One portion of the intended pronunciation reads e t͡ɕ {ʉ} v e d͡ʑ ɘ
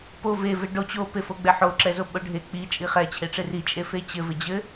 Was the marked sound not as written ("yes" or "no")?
yes